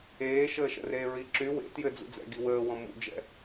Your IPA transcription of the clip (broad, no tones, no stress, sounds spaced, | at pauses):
eː ʃ əː ʃ ə̰ r eː ɹ i ǁ y w ḛ t j ɘ d͡z ṵ d͡z ɛ̰ ɡ i w əː w ɔ̃ m ṵ d͡ʒ ɛ̰